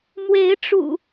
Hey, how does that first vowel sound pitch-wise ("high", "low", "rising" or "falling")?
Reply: rising